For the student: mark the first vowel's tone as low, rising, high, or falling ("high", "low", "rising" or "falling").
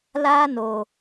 high